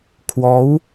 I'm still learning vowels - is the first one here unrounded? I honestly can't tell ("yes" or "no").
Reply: no